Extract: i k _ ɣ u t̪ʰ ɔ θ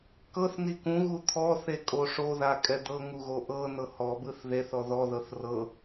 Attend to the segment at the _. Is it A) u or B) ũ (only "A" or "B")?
B